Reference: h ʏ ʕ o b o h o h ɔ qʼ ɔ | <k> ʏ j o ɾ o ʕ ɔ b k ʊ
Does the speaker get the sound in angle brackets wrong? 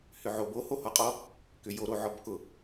no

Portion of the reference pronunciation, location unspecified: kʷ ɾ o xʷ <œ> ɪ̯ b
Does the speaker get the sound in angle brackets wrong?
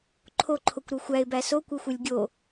yes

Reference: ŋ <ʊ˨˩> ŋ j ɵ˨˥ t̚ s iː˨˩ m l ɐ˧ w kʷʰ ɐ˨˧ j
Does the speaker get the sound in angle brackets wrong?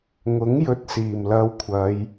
yes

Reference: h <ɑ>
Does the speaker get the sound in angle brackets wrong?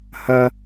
yes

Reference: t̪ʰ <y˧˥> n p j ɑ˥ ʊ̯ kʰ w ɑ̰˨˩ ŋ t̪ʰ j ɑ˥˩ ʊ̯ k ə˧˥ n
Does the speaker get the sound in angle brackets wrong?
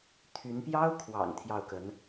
no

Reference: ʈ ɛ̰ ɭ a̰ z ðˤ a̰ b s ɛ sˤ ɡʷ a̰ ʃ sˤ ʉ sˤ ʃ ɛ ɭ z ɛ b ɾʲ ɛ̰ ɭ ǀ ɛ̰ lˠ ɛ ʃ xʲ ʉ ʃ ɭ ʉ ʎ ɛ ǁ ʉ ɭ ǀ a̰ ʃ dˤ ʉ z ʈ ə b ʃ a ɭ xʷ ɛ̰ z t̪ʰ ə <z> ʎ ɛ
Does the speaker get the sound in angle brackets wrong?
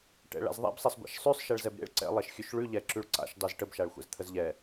no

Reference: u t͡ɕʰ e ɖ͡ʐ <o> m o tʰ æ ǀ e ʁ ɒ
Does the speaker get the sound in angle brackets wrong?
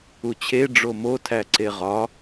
no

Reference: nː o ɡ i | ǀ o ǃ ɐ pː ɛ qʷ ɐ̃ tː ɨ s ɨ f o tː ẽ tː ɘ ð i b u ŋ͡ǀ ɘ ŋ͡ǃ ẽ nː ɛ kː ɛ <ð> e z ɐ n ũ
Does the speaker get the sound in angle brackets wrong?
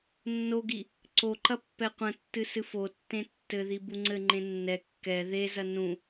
no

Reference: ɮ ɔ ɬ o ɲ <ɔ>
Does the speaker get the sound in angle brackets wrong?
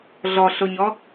no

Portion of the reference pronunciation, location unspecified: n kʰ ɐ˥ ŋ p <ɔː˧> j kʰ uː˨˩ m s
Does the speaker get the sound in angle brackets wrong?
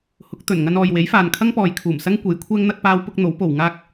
yes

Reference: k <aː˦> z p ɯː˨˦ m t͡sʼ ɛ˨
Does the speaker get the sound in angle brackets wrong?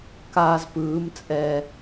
no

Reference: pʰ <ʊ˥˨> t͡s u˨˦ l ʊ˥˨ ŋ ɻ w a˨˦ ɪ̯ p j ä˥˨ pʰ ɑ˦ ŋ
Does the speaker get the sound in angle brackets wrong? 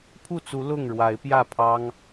yes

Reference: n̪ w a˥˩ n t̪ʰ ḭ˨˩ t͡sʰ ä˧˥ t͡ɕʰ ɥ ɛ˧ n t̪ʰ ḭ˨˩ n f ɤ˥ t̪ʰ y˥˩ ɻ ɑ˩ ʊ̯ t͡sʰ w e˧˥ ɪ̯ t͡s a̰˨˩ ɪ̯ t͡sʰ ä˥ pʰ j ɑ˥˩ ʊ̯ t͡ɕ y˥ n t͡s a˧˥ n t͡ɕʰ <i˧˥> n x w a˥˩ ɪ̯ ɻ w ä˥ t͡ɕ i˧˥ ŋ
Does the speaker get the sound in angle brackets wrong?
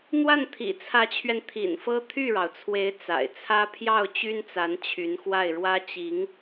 yes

